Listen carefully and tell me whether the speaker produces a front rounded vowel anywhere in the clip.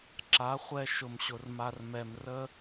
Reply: no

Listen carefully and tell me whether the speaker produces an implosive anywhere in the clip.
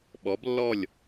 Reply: yes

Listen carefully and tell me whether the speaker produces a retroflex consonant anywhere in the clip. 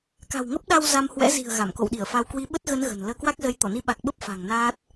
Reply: no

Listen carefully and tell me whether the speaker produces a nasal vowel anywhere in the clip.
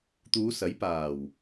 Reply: no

